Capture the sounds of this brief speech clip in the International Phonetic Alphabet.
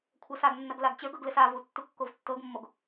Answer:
kʷʰɐsaɡnːɐɡ laɡt͡ɕə˞ɡɤɡlɘs avu tːukːovtːɤɡmːoɡ

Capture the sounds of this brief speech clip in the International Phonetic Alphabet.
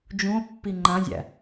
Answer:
d͡ʒũo̯pːi ŋ͡ǃãzʲæ̰

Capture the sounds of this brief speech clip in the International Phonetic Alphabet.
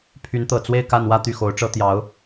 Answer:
pʰy˧˥nt̪ɤ˨˩ t͡swe˥˧ɪ̯ ka˥˧nwä˥˧ t̪y˥˩xo˧˥ʊ̯ʈ͡ʂɤ˥ t̪jɑ˧˥ʊ̯

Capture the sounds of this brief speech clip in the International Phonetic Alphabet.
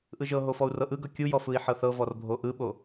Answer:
ʔɯʒɤɦo fɔu̯rɤʔɯɡɤ kʲujɔ fɯi̯ħɤθɤvɔr bʱoʔɯɓo

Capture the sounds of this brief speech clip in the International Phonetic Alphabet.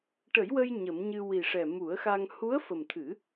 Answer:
ʈə˨˩˦jwə˧j ɲə˨˩˦mɲɨ˧ wi˨˩ʂɛ˨˩mu˨˩˦ə̯xa˧ŋ hu˧˥ə̯fə˨˩mt̪ʰɨ˨˩˦

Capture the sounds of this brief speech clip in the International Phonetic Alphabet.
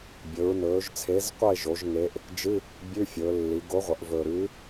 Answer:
bʲɵ˩˧ɹnɵː˩˧ʒt͡sʰe˨˥zqʷɐ˥˧e̯ ʒo˩˧ʒ ŋe˨˥ʔ | d͡ʒɨ˧˥˧ | bʲʉ˧˥˧fʲɵː˩˧lːi˩˧ ɡo˨˥ ʁʷɐ˩˧ʔvɵː˨˩ɾʉː˨˥

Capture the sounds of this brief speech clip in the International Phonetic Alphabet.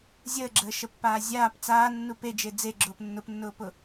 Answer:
zʲəːɡ͡ǁəːʃəpːaː zʲaːp t͡saːnːu ped͡ʒe d͡zeɡ͡ǁʊːp nːʊpnːʊːpʊ

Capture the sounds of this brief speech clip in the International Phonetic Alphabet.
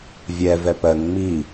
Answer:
vʲɛ vɛpɜŋ ŋ͡mi

